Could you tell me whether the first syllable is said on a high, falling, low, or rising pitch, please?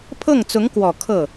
falling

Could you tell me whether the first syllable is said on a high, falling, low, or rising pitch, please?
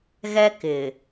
high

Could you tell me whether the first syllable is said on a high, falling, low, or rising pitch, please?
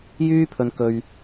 high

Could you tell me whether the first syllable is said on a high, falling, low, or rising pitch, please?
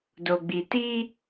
low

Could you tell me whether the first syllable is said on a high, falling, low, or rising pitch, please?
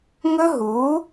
high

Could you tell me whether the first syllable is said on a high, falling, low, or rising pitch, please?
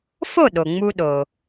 falling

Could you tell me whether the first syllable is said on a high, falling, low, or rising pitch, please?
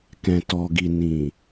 low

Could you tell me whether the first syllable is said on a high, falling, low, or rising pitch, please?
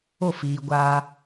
falling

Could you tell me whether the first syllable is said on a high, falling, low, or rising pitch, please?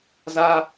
high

